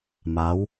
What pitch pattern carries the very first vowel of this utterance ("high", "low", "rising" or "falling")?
rising